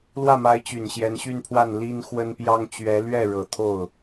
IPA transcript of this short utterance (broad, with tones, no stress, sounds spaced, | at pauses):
l w ä˥˩ m a˧˥ ɪ̯ t͡ɕ y˨˩ n ɕ j ɛ˧˥ n ɕ y˥˧ n pʰ w a˥˩ n l i˥ n x w ə˥ n p j ɑ˥ ŋ t͡ɕ ɥ ɛ˧˥ l ɥ ɛ˥˩ ɻ ɤ˨˩ t̪ʰ o˥˩ ʊ̯